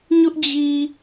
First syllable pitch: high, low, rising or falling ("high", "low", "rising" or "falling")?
high